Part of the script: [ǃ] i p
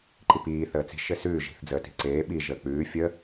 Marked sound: correct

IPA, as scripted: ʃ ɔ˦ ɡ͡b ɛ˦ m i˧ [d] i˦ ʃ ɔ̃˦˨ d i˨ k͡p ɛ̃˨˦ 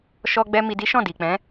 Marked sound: correct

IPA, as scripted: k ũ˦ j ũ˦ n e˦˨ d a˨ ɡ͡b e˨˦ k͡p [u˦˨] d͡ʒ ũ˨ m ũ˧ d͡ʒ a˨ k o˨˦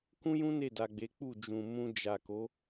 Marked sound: correct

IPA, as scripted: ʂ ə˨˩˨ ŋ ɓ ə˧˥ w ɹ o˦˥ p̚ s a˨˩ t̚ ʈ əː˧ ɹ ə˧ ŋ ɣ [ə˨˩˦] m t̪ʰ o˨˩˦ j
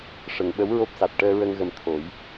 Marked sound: incorrect: ə˨˩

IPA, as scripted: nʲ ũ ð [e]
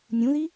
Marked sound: incorrect: i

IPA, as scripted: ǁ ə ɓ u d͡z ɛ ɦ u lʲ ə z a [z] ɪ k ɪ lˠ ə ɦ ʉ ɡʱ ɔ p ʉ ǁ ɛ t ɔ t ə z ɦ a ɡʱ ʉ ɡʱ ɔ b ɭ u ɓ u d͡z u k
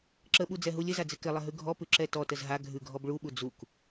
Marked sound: incorrect: d͡z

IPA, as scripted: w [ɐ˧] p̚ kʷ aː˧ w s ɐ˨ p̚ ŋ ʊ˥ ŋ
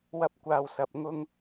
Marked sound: incorrect: ɐ˥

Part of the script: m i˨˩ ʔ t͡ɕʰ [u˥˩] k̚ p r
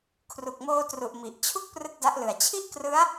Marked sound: correct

